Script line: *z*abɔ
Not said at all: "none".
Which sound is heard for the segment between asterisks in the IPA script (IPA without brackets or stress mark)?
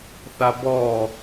θ